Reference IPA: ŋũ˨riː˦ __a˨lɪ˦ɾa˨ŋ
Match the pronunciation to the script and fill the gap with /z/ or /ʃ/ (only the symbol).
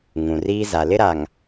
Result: z